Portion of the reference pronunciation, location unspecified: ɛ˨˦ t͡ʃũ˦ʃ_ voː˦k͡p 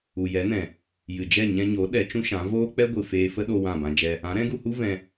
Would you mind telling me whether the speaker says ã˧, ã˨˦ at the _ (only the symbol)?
ã˨˦